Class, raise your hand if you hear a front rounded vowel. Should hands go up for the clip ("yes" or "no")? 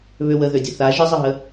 yes